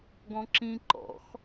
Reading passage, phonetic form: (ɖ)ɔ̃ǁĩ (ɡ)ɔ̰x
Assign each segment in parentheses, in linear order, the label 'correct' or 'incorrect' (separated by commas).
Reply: incorrect, incorrect